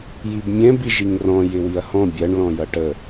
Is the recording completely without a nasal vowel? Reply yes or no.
no